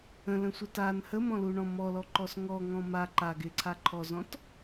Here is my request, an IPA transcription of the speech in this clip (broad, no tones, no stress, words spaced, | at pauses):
ə̃lə̃sʷə tan həmɔ̃luɳɔ̃ mɔlɔǃɔs ŋɔŋɔ̃ ma ǃa ɡɪǀʰa ǃʰɔzɔ̃t